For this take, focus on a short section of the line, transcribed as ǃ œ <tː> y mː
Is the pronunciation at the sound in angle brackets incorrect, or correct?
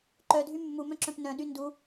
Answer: incorrect: dʱ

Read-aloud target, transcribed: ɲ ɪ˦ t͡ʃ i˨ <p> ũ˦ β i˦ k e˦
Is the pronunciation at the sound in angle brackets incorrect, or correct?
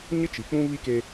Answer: incorrect: k͡p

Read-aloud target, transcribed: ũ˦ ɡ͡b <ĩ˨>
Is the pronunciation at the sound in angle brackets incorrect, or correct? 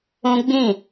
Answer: incorrect: ĩ˦˨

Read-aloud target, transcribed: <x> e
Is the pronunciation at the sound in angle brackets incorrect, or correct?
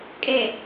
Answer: incorrect: kʼ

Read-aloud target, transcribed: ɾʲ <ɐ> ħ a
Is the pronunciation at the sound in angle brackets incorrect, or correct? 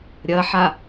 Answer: correct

